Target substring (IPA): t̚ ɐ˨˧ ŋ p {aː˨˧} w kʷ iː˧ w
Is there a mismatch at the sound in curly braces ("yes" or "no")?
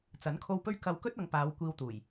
no